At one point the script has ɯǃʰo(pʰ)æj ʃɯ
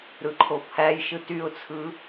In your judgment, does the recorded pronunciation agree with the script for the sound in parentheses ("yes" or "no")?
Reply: yes